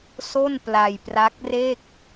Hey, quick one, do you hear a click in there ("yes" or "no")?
no